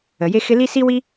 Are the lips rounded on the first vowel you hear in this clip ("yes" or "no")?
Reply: no